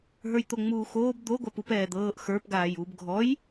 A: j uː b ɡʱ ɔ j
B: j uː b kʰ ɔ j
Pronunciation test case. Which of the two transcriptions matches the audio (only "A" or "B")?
A